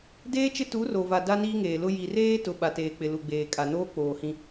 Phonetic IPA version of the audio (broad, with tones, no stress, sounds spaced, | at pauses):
d eː˦ t͡ʃ ɪ˦ t u˨˦ r o˨ v a˨ d a˦ n iː˦ ŋ eː˨ l ʊ˦ j i˨ r eː˦ t ʊ˨ ɓ a˨ t eː˨ k͡p ɪ˨ l u˨ ɡ͡b eː˨ kʼ a˨ n oː˦ k͡p oː˨ h ĩ˦